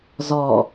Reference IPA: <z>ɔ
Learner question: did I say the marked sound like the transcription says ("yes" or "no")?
yes